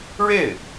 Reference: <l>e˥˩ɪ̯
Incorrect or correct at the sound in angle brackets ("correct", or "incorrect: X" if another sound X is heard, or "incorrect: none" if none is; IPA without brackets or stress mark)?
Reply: incorrect: ɻ